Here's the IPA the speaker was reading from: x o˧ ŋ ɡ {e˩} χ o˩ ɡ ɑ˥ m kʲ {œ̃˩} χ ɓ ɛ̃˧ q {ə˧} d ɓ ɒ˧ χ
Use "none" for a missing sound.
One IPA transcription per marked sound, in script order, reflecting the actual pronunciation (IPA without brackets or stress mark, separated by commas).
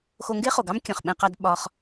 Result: e˥, œ̃˩, ɑ˧